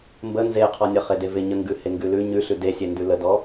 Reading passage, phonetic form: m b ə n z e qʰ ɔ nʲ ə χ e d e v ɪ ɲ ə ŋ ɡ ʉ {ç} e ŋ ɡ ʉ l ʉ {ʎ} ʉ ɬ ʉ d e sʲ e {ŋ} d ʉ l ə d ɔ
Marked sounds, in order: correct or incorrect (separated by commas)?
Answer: incorrect, incorrect, incorrect